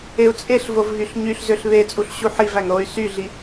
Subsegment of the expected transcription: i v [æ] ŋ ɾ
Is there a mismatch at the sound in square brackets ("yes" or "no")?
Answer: no